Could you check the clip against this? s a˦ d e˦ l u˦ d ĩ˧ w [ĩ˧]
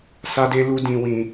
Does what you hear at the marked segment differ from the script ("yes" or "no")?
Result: no